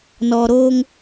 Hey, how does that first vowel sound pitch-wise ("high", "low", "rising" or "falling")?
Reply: low